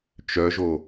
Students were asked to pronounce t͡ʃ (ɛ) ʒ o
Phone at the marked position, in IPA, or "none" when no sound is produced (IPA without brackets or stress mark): œ